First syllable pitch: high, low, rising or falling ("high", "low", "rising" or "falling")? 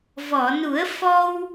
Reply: low